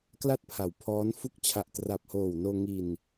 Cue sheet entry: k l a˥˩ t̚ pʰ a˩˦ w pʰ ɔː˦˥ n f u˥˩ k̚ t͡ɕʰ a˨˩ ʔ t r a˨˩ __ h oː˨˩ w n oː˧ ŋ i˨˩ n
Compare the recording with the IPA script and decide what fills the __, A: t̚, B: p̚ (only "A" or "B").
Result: B